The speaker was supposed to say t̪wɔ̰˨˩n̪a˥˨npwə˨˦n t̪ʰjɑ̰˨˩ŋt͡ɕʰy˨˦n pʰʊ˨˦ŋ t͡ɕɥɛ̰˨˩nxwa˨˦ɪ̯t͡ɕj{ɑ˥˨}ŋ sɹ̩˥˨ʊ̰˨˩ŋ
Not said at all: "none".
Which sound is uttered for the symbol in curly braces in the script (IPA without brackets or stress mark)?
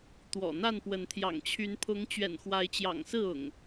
ɑ̰˨˩